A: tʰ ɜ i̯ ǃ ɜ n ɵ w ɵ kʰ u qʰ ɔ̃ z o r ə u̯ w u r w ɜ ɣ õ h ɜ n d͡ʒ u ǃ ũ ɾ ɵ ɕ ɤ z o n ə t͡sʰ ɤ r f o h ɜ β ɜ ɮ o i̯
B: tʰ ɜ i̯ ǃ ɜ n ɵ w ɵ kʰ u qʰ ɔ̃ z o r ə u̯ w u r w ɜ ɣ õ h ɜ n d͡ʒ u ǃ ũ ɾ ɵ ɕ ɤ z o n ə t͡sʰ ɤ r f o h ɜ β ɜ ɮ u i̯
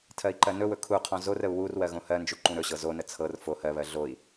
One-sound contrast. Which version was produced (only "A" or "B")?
A